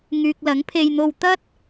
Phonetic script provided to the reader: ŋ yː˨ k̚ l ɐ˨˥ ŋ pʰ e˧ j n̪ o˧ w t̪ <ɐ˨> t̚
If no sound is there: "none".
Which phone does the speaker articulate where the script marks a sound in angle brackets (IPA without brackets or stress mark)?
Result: ɐ˥